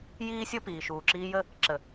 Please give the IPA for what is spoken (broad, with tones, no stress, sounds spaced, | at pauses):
j iː˦ sʲ ɵ˦ p iː˨ ʃ uː˨ ǁ iː˧ j ə˦˨ | ǁ ə˨